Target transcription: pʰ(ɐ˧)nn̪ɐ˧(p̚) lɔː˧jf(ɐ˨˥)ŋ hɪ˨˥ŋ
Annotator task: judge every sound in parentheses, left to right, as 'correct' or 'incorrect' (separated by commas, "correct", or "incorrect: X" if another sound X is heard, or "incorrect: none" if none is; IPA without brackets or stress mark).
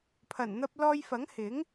incorrect: ɐ˨˩, correct, correct